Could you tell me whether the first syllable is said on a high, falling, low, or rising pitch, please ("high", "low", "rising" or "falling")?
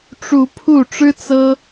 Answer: rising